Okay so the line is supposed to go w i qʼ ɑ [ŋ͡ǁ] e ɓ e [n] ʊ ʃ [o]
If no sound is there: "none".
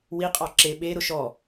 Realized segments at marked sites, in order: ǁ, ɾ, ɔ

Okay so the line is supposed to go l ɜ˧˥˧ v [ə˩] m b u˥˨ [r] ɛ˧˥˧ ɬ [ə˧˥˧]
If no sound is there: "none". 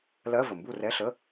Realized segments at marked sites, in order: ə˩, r, ə˧˥˧

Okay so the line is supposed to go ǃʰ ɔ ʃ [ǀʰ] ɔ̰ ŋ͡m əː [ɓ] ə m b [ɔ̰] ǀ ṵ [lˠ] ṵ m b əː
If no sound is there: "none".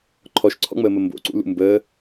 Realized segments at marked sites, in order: ǀʰ, m, o̰, l

